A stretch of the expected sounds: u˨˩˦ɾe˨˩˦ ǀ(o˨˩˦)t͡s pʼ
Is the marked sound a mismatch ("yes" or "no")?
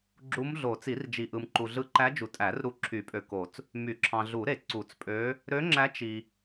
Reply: yes